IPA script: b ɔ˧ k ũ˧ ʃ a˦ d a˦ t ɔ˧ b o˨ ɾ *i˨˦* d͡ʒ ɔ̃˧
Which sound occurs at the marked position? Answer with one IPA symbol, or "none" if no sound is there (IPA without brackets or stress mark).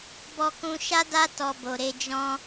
e˨˦